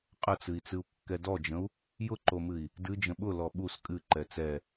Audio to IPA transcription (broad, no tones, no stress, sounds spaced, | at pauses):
qʼ ə t͡s ɨ i̯ t͡s ɨ u̯ kː ɛ d ɔ d͡ʒ ə̃ u̯ | j ʊ ǃ o m ɨ i̯ | d ɨ d͡ʒ ə̃ ɓ ʊ l ɔ ɓ u s kʼ ɨ ǃ ɛ t͡s ɛ